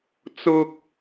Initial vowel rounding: rounded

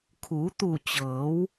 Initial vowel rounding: rounded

